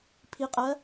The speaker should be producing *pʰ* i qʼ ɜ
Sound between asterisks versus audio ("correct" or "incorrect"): correct